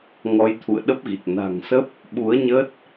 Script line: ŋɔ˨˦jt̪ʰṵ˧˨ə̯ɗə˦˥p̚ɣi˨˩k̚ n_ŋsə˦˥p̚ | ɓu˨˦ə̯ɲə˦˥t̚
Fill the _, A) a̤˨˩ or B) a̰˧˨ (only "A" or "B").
A